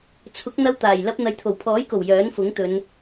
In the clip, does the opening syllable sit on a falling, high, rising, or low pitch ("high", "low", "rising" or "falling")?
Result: rising